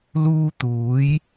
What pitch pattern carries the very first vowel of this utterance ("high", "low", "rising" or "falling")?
high